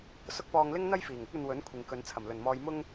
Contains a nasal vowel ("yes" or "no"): no